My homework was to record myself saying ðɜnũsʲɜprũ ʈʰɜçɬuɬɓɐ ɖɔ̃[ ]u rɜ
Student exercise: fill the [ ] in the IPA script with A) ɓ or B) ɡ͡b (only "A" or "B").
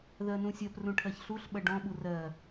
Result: A